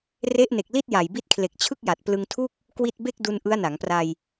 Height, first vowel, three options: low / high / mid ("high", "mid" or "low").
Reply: mid